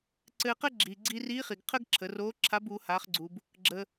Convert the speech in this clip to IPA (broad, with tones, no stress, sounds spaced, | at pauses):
ǀ ɘː˧ q ɘ˥ ɡ͡ǁ iː˩ ɡ͡ǀ i˧ r iː˧˥ χ i˩ ɡ qʰ ə˥ ɡ ǁʰ ə˩˧ r oː˧˥ ǁʰ a˧˥ b uː˩˧ h aː˩˧ χ ɡ͡ǀ u˩ b | ɡ͡ǁ ə˩